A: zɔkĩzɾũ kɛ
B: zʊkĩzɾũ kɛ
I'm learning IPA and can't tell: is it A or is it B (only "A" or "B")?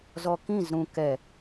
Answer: A